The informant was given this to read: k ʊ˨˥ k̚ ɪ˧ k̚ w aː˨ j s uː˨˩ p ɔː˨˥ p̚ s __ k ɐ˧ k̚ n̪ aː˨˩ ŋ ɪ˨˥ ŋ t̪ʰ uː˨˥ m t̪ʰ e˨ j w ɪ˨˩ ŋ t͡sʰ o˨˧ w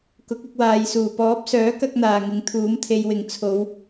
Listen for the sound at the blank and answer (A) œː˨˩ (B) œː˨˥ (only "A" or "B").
B